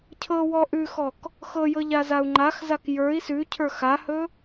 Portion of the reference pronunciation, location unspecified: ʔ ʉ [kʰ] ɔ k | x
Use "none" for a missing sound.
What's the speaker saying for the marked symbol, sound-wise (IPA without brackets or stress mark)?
x